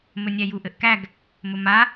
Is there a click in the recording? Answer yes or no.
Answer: no